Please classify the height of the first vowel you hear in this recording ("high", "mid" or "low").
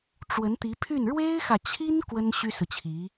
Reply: mid